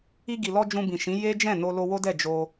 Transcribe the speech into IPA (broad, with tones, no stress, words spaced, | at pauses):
i˧ɡi˨lɔ˧ d͡ʒũ˧bĩ˨ʃĩ˨˦ je˦ d͡ʒɛ̃˦˨no˧ lo˧wo˦dɛ˦˨ d͡ʒo˧